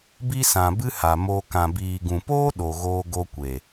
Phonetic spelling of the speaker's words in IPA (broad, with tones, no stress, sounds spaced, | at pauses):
b i˦ s ã˨ b ɨ˦ h a˨ m o˧ k ã˨ b iː˨ ɡ ũ˨ p oː˦ ɗ o˨ ɣ oː˧ ɡ o˧ kʷ e˨